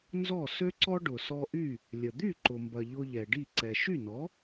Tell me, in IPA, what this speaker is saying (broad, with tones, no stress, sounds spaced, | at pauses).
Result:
n z ɔ˥˩ s ø˥ ǀ ɔ˥ ɖ ʊ˩ s ɔ˧ ʔ y˥˩ | lʲ ə˩ d̪ y˥˩ ǃ ʊ˩ m b ɐ˩ ʎ ʊ˧ ʎ ɛ˩ ɖ i˥˩ ǀ ɛ˩ ʃ y˥˩ n ɔ˩˥